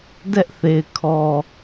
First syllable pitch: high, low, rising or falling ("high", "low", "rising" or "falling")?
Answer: high